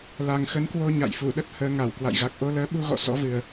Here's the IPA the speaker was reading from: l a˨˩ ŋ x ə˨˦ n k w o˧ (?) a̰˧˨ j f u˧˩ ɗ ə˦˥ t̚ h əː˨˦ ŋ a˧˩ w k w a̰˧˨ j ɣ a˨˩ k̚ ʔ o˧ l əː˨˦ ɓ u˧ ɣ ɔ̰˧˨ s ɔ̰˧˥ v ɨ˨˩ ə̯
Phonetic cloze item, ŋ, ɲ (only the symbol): ɲ